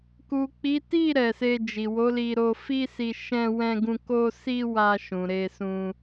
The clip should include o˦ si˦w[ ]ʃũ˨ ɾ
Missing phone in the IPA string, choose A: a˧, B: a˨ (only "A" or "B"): A